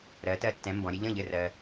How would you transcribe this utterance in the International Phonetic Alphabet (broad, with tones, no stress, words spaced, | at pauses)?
ɾɜ˩˥ tɜ˧tːɛ̃˩˥ mbɔ̃˩˥ɾʲɘ˩˥ ʎə̃˥˩ ʎɘ˥˩rɜ˧